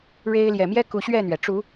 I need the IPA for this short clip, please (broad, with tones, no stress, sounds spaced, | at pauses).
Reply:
ɻ e˦ ɪ̯ l j ɛ˨ m j ɛ˦ k u˨˦ ɕ ɥ ɛ˥˨ n̪ ɥ ɛ˩ ʈ͡ʂ u˨˦